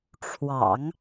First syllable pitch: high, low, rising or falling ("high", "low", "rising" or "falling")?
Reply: low